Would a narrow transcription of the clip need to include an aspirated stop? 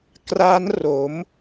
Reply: no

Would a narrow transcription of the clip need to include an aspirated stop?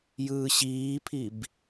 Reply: yes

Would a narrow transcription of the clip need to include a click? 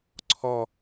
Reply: yes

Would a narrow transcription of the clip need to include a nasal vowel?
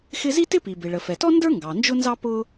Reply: no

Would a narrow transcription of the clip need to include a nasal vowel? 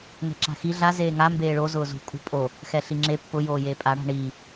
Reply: no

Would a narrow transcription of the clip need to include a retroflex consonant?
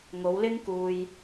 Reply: no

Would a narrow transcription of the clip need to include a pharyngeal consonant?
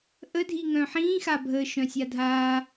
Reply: yes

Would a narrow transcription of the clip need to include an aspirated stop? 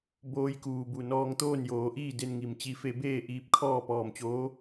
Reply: yes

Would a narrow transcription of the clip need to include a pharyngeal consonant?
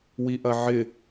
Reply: yes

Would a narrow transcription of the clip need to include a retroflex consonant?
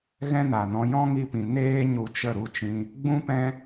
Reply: no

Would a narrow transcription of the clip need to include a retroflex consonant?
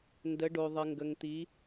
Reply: yes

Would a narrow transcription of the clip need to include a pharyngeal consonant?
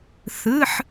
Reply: yes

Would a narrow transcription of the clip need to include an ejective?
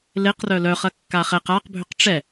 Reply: no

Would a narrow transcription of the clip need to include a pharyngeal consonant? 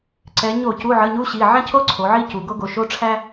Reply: yes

